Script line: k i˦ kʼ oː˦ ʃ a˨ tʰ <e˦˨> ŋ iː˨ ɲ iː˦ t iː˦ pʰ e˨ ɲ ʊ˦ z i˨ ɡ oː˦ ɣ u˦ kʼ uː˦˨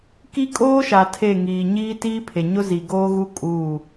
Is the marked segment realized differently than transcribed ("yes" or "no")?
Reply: no